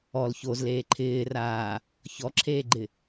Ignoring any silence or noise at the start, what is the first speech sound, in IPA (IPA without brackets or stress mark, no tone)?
ɔ